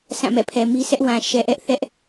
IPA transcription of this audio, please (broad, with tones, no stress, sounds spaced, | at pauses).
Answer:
s ã˦˨ m ɛ̰˦˨ pʰ ɛ˨ m i˦ s ɛ˦ ʔ w ã˨ ʃ ɛ˨ ʔ ɛ˦ ʔ θ ɛ˦ ʔ